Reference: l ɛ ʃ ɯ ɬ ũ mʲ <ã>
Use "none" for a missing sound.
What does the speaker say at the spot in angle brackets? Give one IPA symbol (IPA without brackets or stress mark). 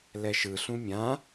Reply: ã